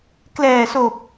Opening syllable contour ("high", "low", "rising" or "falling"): low